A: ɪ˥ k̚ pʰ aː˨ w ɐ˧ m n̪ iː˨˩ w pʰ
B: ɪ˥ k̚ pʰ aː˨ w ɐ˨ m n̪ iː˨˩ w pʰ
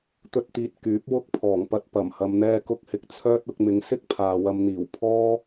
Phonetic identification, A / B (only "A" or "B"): A